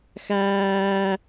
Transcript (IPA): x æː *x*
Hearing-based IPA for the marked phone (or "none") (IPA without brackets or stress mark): none